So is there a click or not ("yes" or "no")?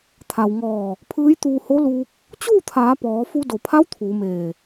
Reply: no